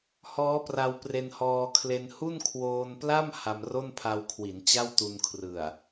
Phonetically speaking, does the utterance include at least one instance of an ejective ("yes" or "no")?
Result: no